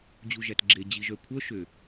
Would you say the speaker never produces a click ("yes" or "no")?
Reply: no